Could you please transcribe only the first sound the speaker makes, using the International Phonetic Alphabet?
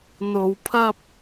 n̪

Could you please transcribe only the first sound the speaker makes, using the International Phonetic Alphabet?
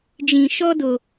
d͡ʒ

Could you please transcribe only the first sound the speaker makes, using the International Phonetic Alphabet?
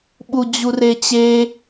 ɓ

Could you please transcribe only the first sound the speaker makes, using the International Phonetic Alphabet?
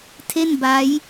tʰ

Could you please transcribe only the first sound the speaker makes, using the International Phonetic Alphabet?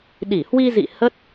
ɗ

